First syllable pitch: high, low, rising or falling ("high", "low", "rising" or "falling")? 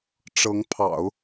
rising